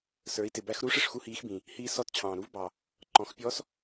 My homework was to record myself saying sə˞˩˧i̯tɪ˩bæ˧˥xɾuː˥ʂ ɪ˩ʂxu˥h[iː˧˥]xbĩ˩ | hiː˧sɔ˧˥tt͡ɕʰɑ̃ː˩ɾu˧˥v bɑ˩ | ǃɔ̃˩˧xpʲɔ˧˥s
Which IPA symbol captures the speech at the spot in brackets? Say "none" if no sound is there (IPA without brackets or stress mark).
iː˧˥